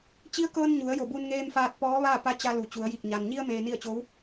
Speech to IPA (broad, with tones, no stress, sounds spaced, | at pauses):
t͡ɕ i˧˥ ə̯ k ɤː˧ n ɲ u˩˧ ə̯ j o˧˩ b u˧ n ŋ eː˧ m f aː˧ t̚ p ɔː˧˥ ʋ aː˥˨ p a˧˥ t͡ɕ a˧ l u˩˧ t͡ɕ u˩˧ ə̯ j i˧˩ k̚ ɲ a˩ n ɲ i˧ ə̯ m eː˧ n i˥˨ ə̯ t͡ɕ o˧˥ w